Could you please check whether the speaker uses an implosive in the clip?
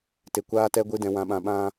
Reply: yes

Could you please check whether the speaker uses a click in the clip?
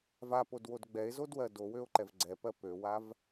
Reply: yes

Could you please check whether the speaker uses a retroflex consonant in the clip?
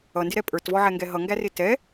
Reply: no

